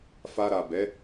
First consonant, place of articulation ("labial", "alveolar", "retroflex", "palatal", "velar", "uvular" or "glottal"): labial